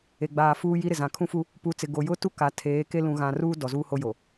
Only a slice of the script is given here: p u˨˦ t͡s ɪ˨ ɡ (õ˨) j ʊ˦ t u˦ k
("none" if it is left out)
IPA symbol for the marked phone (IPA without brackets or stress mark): o˨